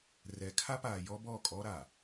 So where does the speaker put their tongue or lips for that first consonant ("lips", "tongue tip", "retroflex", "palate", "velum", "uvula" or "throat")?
tongue tip